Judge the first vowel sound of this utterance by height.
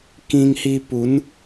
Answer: high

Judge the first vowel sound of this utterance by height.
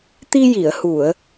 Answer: high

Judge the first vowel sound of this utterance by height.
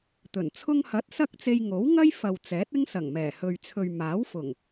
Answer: mid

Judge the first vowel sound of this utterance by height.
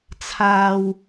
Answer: low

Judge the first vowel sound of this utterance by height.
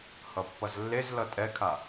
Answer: mid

